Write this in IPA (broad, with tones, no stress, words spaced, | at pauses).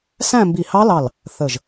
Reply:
sæ̃˥˧ mbi˧˩hɑ˦˥lɑ˧˩l | θə˧˩ʒ